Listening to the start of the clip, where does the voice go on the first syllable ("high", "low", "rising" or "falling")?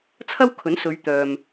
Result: high